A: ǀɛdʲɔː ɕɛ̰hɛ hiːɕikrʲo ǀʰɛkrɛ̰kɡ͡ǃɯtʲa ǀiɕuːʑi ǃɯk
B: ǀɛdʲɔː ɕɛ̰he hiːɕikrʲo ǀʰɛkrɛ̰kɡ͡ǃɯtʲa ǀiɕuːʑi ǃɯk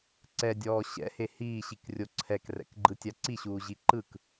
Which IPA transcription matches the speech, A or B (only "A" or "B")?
B